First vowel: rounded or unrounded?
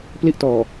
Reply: unrounded